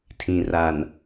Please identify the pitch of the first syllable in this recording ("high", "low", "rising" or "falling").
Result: low